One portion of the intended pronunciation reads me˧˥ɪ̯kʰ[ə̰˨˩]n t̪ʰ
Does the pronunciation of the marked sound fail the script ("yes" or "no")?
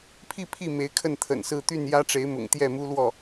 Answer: yes